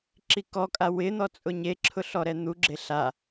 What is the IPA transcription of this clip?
ǁikɔkʼa wɪn̪ɔ t͡sʼʊɲeǁʰʊ ɬɔɾɛn̪uɡ͡ǁe ɬa

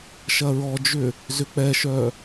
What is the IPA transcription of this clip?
ʃɐɹɔd͡ʒʏ | zʏk͡pɛʃœ

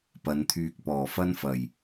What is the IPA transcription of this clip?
pɐ˨˧nt̪ʰyː˧k̚ pɔː˨˩fɐ˥nfɐ˨˩j

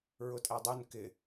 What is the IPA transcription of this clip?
ɹʊtʼædˤun kɪ

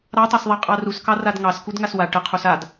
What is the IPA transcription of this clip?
ɾɑtˤɑsðˤa qʼɑruskɑ radŋɑskud ŋaswa ʈə qʰusad

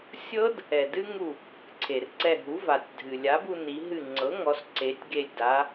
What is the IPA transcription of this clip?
sʲɤ˦˥d | ɛ˩dɨ˦˥ŋu˧˩ | ǀʰe˩rǀɛ˧˩ɦu˩˥ va˩tʲdʱɨ˩ lʲa˩˥bu˧ ni˩˧ɦɨ˧˩ŋ͡ǀɤ˩˥ŋɔ˩˧s ǀe˩˧tʲɡe˧˩lʲda˩˧

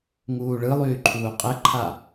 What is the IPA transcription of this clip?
ŋuːɭɯlˠyː ǃʰuːqʼəǃʰa

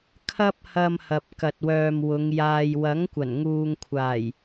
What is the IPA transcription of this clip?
kʰɐ˥p̚hɐ˧m hɐ˨p̚kɐ˨t̚wœː˨m wʊ˨˧ŋjaː˧j wɐ˨˥ŋkʷɐ˨˩nŋuː˨ŋkʷʰaː˨˩j

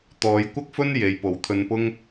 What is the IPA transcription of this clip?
t̪ɔː˨˧jkʷɐ˥k̚ fɵ˥n je˨˧j po˨wt̪ʰɵ˧npʊ˥ŋ

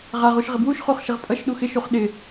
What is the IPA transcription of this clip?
ʁaʁ uʃʁɪbwuʃ χuχʃɪʁpʼʌʃ ɗuxɪ ʃuχɗɪ

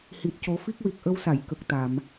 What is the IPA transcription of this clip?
hi˨˩t̚co˨˩˦fi˦˥k̚wi˨˩k̚ ʔə˧wsa˨˩˨j kə˨˩k̚t̪a˨˩˨m

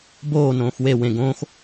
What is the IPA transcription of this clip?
boː nõːxwe wẽ ɡõːx

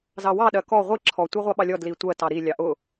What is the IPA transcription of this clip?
zɑwɑ ɗɜkɔ ʁʷi ǁʰɔ tʷɜʁʷɑɓɑlʲɔ dlitʷɜ tɑɾi lʲɑʔʊ

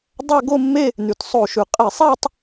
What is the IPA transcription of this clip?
dˤæ˥˧ɡo˥˧mːe˥˧ | nʉ˩tsˤo˧˩˧ʃʉ˩ qʼe˧˩˧sˤɛ˥˧tˤ

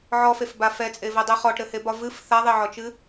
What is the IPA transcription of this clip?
ʕɔfefba fɛt͡sʼevɛdˤe χɔʈɾɘhebɒ vɨf θaðˤeʕɔt͡ʃɨ

